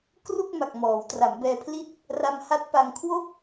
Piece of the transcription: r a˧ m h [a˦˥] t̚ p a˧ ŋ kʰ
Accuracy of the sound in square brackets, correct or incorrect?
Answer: correct